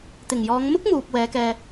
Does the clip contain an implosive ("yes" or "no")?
no